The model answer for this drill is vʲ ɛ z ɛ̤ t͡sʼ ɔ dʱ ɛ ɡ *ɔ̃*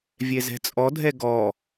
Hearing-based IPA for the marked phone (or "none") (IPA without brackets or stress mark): ɔ